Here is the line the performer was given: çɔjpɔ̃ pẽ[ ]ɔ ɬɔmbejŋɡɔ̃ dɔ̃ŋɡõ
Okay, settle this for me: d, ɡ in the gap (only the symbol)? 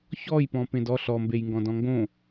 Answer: d